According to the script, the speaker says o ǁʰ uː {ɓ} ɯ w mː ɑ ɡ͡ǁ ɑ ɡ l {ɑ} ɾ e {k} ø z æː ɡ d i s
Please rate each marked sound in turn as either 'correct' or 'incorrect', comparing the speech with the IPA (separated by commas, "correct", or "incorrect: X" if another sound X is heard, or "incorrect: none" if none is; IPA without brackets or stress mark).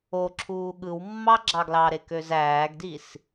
incorrect: ɠ, correct, correct